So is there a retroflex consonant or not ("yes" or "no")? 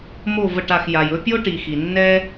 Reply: yes